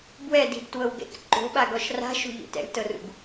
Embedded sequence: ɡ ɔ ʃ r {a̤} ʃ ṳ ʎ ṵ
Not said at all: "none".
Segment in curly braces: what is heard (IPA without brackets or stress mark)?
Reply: a̤